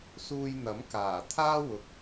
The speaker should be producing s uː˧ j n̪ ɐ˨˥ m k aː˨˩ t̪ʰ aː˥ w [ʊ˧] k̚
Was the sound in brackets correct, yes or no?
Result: no